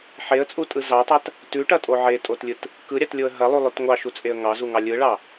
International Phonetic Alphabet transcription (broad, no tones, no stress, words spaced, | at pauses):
ħeə̯t͡sʼutʼɯ zɑtˤat | tʉʈɐtʼo ʕetʼotlʲɯt | kɯɾʲɑtlʲoə̯ ɦɐlˠulˠʉt ŋʷɑʃut͡sʼeə̯ ŋɑzuŋɑ lʲɯɭɑ